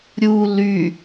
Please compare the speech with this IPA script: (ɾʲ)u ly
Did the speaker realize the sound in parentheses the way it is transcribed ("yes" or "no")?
yes